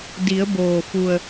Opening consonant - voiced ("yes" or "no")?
yes